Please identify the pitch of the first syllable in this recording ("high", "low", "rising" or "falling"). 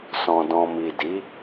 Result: low